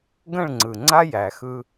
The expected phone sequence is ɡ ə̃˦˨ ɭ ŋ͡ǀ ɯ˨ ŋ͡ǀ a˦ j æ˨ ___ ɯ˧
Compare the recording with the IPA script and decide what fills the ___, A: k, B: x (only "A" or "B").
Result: B